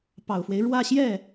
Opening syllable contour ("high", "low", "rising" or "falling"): low